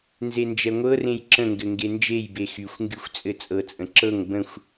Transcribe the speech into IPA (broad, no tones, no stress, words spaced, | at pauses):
nzend͡ʒɛŋʷɤrẽj ǁə̃ŋɡɘ ŋɡend͡ʒejbe xyxʷŋɡyxʷ t͡sʼɘt͡sʼɤt͡sʼə̃ ǁɤŋ bə̃xʷ